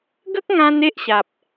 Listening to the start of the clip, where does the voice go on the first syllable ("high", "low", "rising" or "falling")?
high